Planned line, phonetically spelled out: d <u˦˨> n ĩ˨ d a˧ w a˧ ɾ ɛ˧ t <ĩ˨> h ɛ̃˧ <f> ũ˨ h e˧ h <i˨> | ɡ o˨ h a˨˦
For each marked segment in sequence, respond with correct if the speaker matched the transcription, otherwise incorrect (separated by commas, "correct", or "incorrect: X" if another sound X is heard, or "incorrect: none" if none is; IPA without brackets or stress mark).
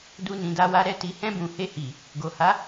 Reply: incorrect: u˧, incorrect: i˨, incorrect: b, correct